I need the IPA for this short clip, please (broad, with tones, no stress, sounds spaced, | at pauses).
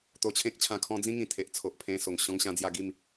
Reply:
t̪ o˧ t͡ɕʰ ẽ˦ k̚ t͡ɕʰ ã˧ kʰ ɔ̃˦ d͡z ĩ˦ ŋ ĩ˨˩ t̪ʰ e˨ ʔ t͡sʰ o˨ ʔ pʰ ẽ˧ s o˨˩ ŋ ɕ ɔ̃˧ ŋ ɕ ã˧ d͡z j a˧ ɡ i˥˧ m